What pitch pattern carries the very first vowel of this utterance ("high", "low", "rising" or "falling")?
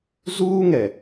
high